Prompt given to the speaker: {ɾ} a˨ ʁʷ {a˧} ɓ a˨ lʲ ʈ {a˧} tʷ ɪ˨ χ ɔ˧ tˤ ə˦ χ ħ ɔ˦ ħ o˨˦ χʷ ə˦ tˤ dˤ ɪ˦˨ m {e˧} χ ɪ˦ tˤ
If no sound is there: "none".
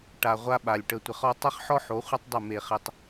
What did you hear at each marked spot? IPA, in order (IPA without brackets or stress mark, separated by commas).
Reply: ʈ, a˧, ə˧, e˧